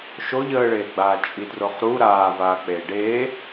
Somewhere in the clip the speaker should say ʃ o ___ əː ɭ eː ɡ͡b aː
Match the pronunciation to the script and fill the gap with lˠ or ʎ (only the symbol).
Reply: ʎ